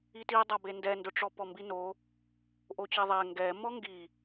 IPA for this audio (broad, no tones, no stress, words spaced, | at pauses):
itidˤabe ndɛndʊʈ͡ʂɔ pɔmbino | ʔot͡ɕeðˤɛ ŋɡɛ mɔŋɡi